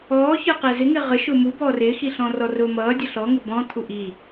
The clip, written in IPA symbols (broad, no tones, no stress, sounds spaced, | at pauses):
ɔː ç ə˞ q æ z ɪ ŋ ɪː ʁ ə ʃ ʊ m u b ɔː r ɪː x i ɬ ɔ̃ r ɔ r ʊː m ʌː dʲ ʌ ɬ ɔ ŋ ɪ b ɔ̃ t̪ʰ u ʔ i